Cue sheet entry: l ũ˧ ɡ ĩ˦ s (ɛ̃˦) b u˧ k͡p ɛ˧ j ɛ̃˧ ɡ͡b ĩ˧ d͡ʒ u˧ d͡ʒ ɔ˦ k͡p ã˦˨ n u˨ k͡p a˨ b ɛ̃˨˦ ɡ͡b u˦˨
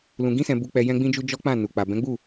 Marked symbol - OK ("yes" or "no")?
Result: no